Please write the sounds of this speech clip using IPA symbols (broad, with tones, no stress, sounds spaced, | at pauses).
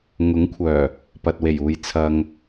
ŋ ʊ˨˥ ŋ kʷʰ œː˨˩ | p ɐ˨ t̚ w e˨˩ j uː˨ j t͡sʰ ɐ˨ ŋ